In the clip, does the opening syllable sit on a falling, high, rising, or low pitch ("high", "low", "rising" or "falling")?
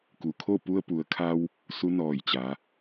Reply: low